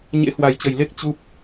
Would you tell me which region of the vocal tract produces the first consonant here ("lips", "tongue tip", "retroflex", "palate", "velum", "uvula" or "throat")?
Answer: palate